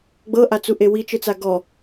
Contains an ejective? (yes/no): no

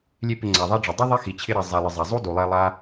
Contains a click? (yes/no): yes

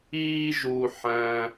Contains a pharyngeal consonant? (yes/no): yes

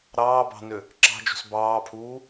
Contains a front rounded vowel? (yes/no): yes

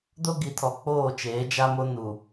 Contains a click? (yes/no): no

